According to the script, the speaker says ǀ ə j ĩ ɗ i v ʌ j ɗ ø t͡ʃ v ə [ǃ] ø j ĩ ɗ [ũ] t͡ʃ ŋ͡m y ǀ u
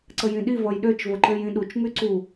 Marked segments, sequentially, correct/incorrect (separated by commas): correct, incorrect